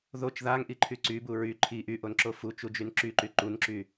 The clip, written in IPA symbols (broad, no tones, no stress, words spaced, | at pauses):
ðot͡ʃ ðaŋʔiǃʰy ǀybu ɹy ǃʰi ʔyʔonǁo fut͡ʃud͡ʒyn ǁyǃy ǃunǁy